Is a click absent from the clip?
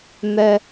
yes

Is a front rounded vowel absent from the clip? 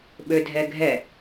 no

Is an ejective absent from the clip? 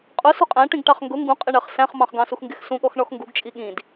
no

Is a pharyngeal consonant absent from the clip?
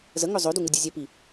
yes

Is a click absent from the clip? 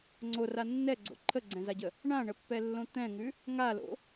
no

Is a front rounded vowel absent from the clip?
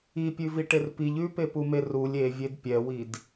yes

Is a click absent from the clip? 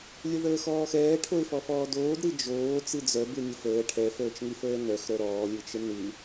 yes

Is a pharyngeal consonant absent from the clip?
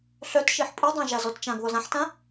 no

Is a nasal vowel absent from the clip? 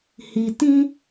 no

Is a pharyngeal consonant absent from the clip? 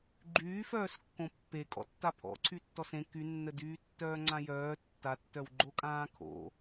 yes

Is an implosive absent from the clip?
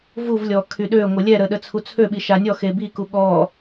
no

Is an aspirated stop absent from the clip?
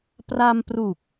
yes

